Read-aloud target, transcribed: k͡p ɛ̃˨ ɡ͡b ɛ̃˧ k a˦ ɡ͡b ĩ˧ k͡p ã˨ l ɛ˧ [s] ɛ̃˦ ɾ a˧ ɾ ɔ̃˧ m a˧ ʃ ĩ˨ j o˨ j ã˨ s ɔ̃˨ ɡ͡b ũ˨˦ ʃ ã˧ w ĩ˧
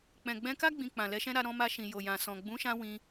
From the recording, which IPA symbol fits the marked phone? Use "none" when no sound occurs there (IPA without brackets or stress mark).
ʃ